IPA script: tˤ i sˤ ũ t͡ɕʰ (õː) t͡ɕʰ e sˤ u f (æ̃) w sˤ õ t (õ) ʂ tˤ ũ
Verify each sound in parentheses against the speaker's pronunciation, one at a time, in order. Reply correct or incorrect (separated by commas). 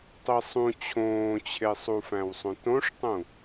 correct, correct, correct